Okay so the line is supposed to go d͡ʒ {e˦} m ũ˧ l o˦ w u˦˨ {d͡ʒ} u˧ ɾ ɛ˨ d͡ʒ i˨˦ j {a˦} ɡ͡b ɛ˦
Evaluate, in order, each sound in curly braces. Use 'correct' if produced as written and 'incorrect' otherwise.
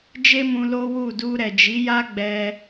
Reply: correct, incorrect: d, correct

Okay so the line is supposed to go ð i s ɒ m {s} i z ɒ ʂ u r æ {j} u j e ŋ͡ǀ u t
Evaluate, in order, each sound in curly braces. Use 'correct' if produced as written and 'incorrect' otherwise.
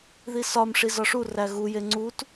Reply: incorrect: ʂ, incorrect: ɣ

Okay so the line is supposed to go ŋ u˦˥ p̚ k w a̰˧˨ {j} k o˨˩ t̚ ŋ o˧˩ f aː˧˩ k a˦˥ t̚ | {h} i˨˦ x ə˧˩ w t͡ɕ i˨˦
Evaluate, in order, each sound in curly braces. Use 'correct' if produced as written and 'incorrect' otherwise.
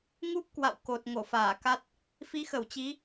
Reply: incorrect: w, incorrect: f

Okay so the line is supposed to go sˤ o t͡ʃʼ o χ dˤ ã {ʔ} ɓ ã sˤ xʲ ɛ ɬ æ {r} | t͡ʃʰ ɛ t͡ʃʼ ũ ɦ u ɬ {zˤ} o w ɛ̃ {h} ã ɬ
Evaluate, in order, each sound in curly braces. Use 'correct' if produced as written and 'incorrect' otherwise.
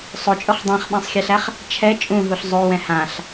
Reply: incorrect: χ, incorrect: χ, correct, correct

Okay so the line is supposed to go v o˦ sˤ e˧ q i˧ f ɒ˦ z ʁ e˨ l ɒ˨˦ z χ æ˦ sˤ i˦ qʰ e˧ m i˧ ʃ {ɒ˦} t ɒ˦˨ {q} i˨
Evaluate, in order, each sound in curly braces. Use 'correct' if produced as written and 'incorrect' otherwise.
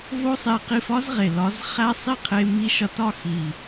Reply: incorrect: ɒ˧, incorrect: x

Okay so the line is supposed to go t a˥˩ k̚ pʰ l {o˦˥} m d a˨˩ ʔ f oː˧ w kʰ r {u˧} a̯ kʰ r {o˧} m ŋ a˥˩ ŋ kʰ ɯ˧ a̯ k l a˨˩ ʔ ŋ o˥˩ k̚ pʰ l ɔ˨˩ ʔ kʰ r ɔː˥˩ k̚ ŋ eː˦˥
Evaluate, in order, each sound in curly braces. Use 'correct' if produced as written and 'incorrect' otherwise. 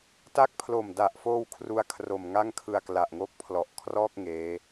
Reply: incorrect: o˨˩, correct, incorrect: o˨˩

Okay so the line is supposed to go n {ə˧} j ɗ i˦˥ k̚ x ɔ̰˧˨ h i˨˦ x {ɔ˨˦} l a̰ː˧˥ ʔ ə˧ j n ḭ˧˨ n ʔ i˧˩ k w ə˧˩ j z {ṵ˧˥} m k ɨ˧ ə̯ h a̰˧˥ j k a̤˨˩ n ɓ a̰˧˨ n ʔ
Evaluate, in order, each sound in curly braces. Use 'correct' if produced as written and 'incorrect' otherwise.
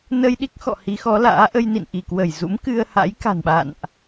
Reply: correct, correct, correct

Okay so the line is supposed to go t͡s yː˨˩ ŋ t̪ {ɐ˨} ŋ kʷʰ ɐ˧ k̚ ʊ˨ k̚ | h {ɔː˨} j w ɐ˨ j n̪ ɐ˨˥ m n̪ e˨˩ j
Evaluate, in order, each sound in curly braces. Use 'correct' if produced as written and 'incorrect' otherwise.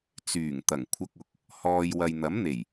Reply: incorrect: ɐ˨˩, correct

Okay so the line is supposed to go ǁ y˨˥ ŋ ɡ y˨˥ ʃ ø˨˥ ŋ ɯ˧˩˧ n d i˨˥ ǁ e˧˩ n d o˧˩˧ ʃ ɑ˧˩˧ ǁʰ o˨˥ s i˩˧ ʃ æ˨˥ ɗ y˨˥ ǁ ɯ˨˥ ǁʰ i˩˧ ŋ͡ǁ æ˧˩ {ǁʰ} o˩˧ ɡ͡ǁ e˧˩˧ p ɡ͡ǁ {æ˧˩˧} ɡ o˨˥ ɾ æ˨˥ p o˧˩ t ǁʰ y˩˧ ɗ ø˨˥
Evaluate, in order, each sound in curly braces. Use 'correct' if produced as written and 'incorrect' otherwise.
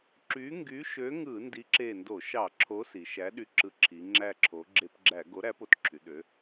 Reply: correct, correct

